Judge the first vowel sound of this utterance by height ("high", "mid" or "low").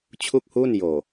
high